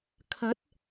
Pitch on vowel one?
rising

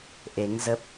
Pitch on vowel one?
rising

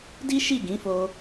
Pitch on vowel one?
high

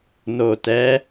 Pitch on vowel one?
low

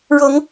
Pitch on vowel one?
rising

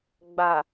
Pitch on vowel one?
low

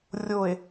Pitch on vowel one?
low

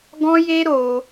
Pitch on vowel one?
high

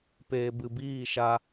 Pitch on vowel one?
low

